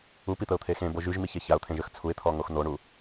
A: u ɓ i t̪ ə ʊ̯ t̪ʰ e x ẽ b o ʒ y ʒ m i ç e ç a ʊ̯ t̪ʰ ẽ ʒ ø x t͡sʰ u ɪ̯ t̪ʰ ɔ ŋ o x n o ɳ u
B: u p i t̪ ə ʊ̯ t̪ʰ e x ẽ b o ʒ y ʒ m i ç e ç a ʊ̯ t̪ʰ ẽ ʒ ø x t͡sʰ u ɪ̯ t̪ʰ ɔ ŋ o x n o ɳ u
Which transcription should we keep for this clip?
B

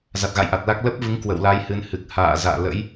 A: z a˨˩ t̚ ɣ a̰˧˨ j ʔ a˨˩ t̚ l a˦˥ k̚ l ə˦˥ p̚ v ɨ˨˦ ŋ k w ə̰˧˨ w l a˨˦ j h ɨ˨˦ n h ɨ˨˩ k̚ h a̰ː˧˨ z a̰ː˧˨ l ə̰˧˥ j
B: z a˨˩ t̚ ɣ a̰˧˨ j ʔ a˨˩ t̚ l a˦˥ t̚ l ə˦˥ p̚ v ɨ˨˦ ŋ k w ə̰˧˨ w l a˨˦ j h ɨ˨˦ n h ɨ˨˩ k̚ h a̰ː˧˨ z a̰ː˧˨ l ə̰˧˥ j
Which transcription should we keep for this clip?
A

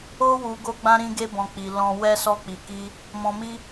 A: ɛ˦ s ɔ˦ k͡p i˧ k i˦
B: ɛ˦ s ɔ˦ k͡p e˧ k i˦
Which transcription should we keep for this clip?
A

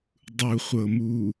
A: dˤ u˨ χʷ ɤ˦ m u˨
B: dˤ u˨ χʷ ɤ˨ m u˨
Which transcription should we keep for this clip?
B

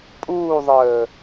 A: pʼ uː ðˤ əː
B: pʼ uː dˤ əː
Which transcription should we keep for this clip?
A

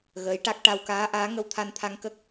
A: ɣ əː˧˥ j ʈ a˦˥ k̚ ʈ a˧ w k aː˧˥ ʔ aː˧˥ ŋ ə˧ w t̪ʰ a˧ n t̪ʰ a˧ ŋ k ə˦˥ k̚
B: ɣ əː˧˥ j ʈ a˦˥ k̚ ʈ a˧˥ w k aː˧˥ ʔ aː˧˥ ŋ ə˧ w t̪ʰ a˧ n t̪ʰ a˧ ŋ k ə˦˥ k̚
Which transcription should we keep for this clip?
A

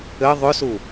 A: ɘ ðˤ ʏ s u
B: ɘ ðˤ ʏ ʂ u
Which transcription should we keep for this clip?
A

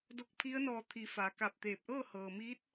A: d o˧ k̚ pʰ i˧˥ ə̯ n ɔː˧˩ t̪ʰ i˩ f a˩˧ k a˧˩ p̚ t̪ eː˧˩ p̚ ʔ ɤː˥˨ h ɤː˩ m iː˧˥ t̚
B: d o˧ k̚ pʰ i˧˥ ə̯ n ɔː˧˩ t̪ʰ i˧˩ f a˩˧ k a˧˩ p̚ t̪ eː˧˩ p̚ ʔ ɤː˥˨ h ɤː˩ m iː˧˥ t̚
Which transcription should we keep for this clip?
A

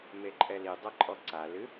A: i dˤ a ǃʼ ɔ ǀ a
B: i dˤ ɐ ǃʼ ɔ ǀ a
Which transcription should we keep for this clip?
B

